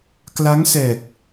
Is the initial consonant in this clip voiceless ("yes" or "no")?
yes